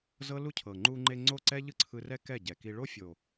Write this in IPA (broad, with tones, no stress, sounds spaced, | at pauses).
z ɤ˦ l u˦ cʰ ɤ˨ ŋ͡ǃ u˧ ŋ͡ǃ e˧ ŋ͡ǀ o˦˨ ǀ ɛ˦ ʎ ɯ˦ ǀʰ ɯ˧ r ɛ˦ k ɛ˦˨ ɟ ɛ˨ k i˧ ɭ o˦ fʲ o˨